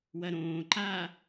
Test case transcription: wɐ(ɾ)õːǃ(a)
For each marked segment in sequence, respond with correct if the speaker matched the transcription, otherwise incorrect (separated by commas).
correct, incorrect